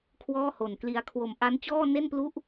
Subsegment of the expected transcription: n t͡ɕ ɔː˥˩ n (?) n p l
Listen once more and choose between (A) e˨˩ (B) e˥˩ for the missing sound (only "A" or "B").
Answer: B